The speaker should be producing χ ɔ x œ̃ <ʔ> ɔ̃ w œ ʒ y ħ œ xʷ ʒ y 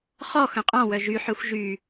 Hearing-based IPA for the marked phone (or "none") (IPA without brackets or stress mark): qʼ